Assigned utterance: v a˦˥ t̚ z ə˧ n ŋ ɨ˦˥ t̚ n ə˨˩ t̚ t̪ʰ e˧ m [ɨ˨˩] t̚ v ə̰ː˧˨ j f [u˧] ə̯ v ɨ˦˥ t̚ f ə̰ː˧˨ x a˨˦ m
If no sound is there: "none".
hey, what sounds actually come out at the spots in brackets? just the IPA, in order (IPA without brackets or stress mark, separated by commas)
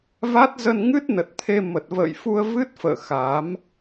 ə˨˩, u˧